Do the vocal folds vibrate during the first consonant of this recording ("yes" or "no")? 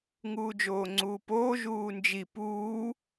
yes